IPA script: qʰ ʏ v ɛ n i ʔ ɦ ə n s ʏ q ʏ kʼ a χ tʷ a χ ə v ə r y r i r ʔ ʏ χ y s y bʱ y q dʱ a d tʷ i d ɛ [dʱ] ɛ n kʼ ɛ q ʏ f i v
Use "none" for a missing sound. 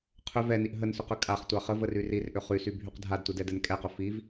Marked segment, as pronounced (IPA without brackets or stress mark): d